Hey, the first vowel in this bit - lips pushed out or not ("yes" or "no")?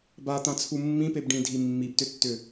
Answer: no